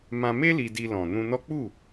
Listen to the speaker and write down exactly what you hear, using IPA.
m ã˧ m e˦ l i˧ d i˧ l ɔ̃˨ n ũ˧ n ɔ˦ k͡p u˦˨

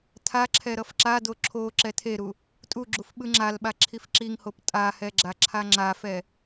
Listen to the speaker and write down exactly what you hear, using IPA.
tʰ a ǁʰ ɛ ɾ ʌ f ǁ a d o ǁʰ o ǁ ɛ tʰ e ɾ u | tʼ u ɡ͡ǁ u f ɓ ɯ ŋ͡ǁ a l ɓ a ǁʰ i f ǁ i ŋ h o p tʼ a h ɛ ɡ͡ǁ a ǁʰ a ŋ͡ǁ a f ɛ

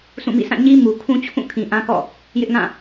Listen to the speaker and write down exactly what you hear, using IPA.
s ũ˦˨ m ḭ˦˨ s ã˦˨ ɲ i˦ m u˨ kʰ ũ˦ t͡ɕʰ ũ˦˨ kʰ ĩ˨ ʔ ã˦ k ɔ̰˦˨ | j ɪ˦ ʔ ŋ ã˦˨

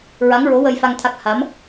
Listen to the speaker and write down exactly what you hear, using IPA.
ɹ a˧˥ ŋ ɹ o˧˥ w ə˧ j f a˧ ŋ t̪ʰ a˦˥ k̚ h a˧˥ m

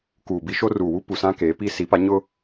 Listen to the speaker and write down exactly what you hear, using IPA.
k uː˨ b i˦ ʃ o˦ r uː˨ w u˦ p u˨ s ã˦ k eː˨˦ p i˦ s i˨˦ p a˨˦ ɲ ʊ˦

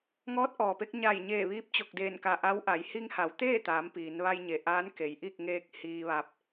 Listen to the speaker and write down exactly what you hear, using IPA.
ŋ ɔː˧˥ t̚ ʔ ɔː˩ p e˧ k̚ ɲ a˧˩ j ɲ eː˧˩ ʋ iː˧˥ p̚ t͡ɕ o˧˩ k̚ d eː˧˩ n k a˧˩ ʔ a˧˥ w ʔ a˩˧ j h i˧ ŋ h a˩˧ w t̪ eː˥˨ t̪ aː˩˧ m p iː˩˧ n ʋ a˧ j ɲ e˩˧ ʔ aː˧˥ n k e˩ j ʔ i˥˨ k̚ ŋ eː˧ k̚ h iː˧ ʋ a˧ p̚

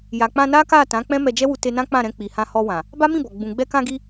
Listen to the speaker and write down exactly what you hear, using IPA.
j a˨ k͡p ã˧ n a˦ k a˦˨ t ã˨˦ k͡p ɛ̃˦ m ɛ˧ d͡ʒ ɛ˦ w u˧ t e˧ n ã˦ k͡p ã˦˨ ɾ ɛ̃˧ k͡p i˨ h ã˧ h ɔ˧ w ã˨ | b a˦ m ĩ˦˨ b ɔ˨ ɡ͡b ũ˨ ɡ͡b ɛ˧ k ã˧ ɡ i˧

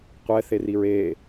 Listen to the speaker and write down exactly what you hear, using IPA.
qʷ ɛ θ e r i ɹ e

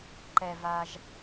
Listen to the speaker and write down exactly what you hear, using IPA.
ǃ ɛ˩ v a˩ ʒ

